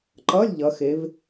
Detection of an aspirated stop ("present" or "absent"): absent